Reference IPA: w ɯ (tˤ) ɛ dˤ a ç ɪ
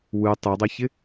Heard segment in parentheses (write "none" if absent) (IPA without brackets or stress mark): tˤ